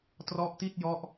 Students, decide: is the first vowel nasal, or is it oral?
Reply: oral